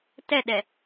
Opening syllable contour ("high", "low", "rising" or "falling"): falling